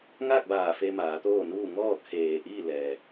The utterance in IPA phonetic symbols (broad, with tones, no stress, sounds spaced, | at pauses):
ŋ aː˥˨ k̚ b aː˧˩ f e˧ m aː˩˧ t̪ oː˥˨ n uː˥˨ ŋ ɔː˥˨ kʰ eː˧˩ ʔ iː˥˨ l ɛː˩